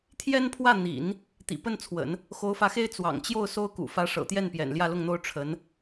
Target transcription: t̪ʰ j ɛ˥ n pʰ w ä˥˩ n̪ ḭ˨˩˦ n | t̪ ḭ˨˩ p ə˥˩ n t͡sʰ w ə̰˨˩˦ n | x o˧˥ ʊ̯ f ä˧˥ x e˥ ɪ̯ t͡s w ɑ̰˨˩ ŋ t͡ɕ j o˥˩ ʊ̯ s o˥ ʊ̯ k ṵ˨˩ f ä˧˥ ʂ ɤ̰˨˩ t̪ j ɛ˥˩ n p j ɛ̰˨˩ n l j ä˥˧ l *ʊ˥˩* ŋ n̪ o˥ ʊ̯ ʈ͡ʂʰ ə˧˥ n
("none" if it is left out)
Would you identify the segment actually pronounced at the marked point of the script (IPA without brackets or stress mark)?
ʊ˥˩